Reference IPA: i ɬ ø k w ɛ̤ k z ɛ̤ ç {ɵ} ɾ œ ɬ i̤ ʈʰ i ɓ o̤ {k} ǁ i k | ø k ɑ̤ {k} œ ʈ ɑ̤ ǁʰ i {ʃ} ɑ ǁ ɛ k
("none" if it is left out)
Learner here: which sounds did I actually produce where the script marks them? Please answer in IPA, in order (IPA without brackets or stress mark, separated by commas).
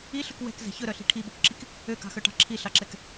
ɵ, k, x, ɬ